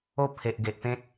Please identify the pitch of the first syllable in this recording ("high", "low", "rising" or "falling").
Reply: falling